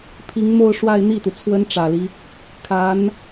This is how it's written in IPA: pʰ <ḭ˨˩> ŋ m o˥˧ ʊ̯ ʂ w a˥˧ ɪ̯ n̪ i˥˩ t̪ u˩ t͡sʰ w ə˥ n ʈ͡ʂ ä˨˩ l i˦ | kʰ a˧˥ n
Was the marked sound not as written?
yes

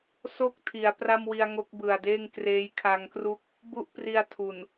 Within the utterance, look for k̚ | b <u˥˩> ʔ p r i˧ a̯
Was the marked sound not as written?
no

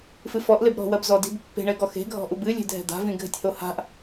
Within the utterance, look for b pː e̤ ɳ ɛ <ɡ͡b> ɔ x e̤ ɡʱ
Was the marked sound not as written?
yes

